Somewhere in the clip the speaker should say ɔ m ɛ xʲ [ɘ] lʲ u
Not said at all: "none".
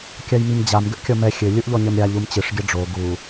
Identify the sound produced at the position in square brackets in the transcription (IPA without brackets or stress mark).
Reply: ɘ